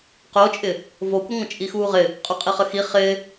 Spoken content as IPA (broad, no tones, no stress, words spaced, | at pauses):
qot͡ʃʼɪ | vokʷɪ ŋʷə̃t͡ʃʼixuːʁɪ | qʼuqʼiχəxi χɪː